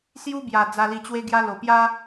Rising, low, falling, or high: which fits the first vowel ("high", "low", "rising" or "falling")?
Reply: high